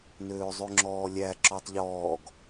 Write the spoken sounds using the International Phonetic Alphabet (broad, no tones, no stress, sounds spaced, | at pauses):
n øː zˤ ʉ ŋ͡ǁ ɔː lʲ æ ǁ ɔ tˤ ʎ ɔː ɡ